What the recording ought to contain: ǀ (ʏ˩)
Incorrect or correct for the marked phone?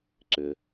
correct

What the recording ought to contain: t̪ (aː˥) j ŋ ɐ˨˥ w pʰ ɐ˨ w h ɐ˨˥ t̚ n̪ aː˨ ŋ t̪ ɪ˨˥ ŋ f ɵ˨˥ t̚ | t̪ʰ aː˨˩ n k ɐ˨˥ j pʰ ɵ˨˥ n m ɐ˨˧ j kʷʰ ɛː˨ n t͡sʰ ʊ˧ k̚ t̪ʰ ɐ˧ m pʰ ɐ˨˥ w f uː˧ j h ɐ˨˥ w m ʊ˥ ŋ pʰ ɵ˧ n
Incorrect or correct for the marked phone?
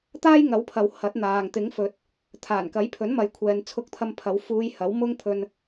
correct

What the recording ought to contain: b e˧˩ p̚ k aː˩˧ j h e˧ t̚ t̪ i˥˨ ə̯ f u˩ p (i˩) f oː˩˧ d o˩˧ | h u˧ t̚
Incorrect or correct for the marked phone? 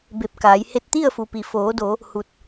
correct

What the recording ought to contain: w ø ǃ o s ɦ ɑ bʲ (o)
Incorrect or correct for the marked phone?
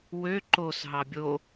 correct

